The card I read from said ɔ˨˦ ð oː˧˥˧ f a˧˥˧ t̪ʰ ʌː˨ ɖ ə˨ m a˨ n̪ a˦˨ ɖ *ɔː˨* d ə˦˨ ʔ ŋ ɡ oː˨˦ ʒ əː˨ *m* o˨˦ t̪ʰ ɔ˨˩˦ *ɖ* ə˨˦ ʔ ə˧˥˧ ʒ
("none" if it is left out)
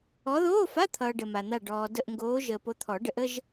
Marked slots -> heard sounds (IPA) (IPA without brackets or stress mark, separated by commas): ɔː˨, p, ɖ